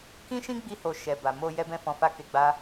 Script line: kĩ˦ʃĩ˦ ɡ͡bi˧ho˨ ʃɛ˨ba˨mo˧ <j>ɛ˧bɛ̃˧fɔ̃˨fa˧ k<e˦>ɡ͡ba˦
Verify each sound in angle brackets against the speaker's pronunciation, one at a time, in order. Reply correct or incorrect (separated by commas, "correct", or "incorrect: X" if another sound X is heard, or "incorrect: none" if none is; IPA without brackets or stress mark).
correct, incorrect: e˧